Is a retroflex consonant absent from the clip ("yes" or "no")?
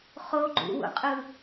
yes